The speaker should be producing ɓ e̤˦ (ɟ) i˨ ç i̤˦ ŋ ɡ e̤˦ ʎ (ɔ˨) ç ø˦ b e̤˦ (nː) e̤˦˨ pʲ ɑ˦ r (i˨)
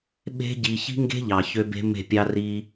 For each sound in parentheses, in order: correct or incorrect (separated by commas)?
correct, incorrect, incorrect, incorrect